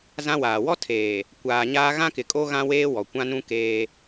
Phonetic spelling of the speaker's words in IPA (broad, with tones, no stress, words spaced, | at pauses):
zã˦waː˨ wɔ˦ tʰeː˨ | kʷaː˨ɲaː˦ ɣã˦kɪ˨kʼo˦ ɣã˦ weː˦wɔ˨ kʷã˦nũ˦keː˦